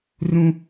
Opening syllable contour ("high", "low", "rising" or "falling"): high